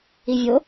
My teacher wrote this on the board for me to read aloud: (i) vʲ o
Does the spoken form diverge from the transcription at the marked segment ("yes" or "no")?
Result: no